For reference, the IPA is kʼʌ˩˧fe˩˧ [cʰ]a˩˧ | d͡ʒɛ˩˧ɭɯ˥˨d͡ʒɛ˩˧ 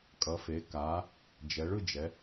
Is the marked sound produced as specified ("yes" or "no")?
no